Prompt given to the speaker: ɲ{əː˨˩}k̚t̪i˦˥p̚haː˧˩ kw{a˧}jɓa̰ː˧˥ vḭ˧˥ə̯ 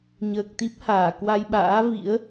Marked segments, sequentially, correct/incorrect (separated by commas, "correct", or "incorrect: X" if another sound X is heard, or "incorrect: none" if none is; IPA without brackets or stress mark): correct, correct